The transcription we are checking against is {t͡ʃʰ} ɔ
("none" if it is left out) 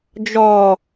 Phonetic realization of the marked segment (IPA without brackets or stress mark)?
d͡ʒ